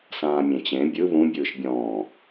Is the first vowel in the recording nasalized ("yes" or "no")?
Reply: yes